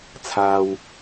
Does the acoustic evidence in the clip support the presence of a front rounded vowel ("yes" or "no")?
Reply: no